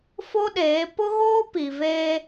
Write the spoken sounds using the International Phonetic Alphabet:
fo˦ɗeː˨˦ pʊ˦ɣoː˦ pi˨veː˦

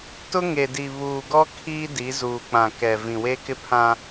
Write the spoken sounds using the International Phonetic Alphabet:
tʊ˦ŋe˨di˨ βuː˨ɡɔ˦ kʰiː˦di˨˦zuː˨ k͡pã˨kɛ˨ vĩ˨we˦kɪ˦pʰã˦

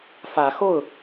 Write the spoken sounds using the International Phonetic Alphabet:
fä˨˦xo˥˨ʊ̯

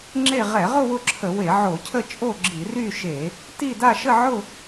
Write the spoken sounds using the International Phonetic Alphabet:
ŋ͡ǁe˥˧ ʁɛ˧˩˧ʁʊ˥˧ wʊ˥˧ǁʰə˧˩˧we˧˩˧ ʕo˧˩˧cʰə˥˧t͡ʃʼo˥˧ɡ͡ǁi˧˩˧ ry˥˧ ʃe˧˩˧ | ti˥˧ da˥˧ʃə˥˧ ʕʊ˥˧

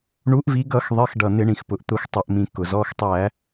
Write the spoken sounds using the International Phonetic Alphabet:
ɳu˨˦ʔvi˨˦ ɡʌ˧˩˧xðˤɪ˩˧˩xɖʌ˩ n̪ɪ˧˩˧ɳĩ˩xpʊ˩ʔ t̪ʊ˧˩˧xʷtˤʌ˩ʔmĩ˩ kʊ˩ zɔ˩˧˩xtˤæ˧˩˧

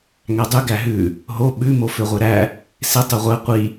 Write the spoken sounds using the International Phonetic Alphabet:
ŋædˤʉ ɡæɦʉ | ɦo ɓʉ moføʁʷeɾæ | se tˤʉʁʷæ qʷi

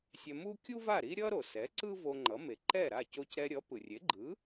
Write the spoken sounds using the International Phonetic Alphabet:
sʲɛ˧mu˥ kʲu˥va˥˩ɾi˥ ɾʲʌ˥ ɾo˩sɛ˩˥ ǀɯ˥ vo˧ŋ͡ǃʌ˩˥me˩ ǃɛ˥˩ɾa˥˩ co˧cɾɛ˧ɾʲʌ˩˥ pɯ˩rʲe˩˥ɡ͡ǃɯ˩˥

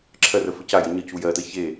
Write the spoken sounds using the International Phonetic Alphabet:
ǁʰɜrə fəcajə ɲəcu jɜtə çe

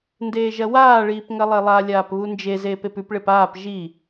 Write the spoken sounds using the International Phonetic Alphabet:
ndeːʒɐwaːɭiːp ŋɐlˠelˠalʲaːp βund͡ʒezeːp epʉpɭep aːp ʒi

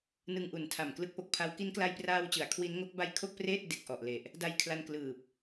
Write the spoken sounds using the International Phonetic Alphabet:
nɯ˧ŋʔu˨˩ntʰa˨˩m klɯ˦˥k̚po˨˩k̚pʰa˦˥w ki˦˥nkla˧jpraː˧wt͡ɕɯ˩˦a̯ kʰwi˦˥nŋo˦˥k̚ ba˧j kʰo˥˩k̚preː˥˩t̚ de˨˩k̚ʔɔ˨˩ʔle˨˩ʔ | da˧jkʰla˧n klɯː˨˩p̚

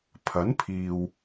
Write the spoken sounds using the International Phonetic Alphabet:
pʰɐ˨˥npʰiː˨w

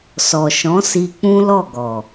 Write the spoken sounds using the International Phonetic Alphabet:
sɔ˨ʃɔ̃˨˦si˧ k͡pũ˦lɔ˦˨ɡɔ˨

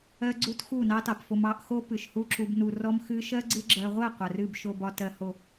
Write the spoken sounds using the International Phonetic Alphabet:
ɜ˦ɡ͡ǀu˦t xu˦˨ nɑ˦tɑ˨pfo˧m ɑ˧ʔxo˦ pɨ˨ʃhu˦ǁu˧b nu˨rɔ˦m xɨ˧ʃɜ˦ ɡ͡ǀɨ˧ɡ͡ǁɜ˨ʁʷɜ˦˨ qʷɜ˨rɨ˦˨b ʃo˨bɒ˨tɜ˨ ho˨

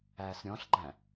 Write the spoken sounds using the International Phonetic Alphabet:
æːsɾʲɔ̃ɬɡ͡ǃæ̃

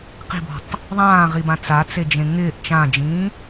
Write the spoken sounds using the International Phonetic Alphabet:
qi̤bɔ̤tˤ | ðˤãːʁibã t͡sat͡sed͡ʒẽ ŋɪːʔ t͡ʃãːd͡ʒĩː

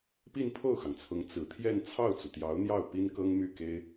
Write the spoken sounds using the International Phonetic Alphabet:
pi˥˧npʰo˥˩ʊ̯xɑ˩ŋt͡sʰʊ˧˥ŋ t͡sɹ̩˨˩t̪ʰjɛ˥˧n t͡sʰɑ˥˩ʊ̯t͡su˩t̪jɑ˧˥ʊ̯n̪jɑ˥˩ʊ̯ pi˥nkɤ˥ŋ my˥˩ke˥ɪ̯

